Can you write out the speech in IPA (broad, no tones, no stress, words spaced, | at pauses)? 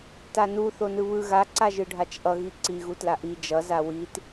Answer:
tanu θonɯβɯ ɣa ǀaʒɯɖʱat͡ʃʔʌ ɣiǀi ɣutlaʔi d͡ʒʌ zawit